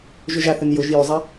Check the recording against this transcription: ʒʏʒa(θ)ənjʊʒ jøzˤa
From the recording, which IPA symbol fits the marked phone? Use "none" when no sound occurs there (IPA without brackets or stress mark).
θ